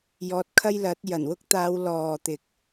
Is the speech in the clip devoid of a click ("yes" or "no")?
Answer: yes